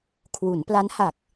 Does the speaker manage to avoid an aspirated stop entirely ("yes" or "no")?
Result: no